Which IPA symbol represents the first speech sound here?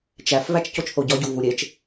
t͡ʃ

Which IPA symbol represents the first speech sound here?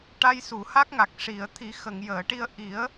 ʈ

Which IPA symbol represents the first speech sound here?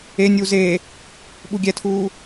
e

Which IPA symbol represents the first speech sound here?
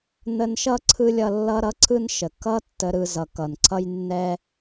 n̪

